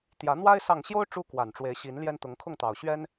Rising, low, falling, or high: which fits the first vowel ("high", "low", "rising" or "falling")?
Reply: rising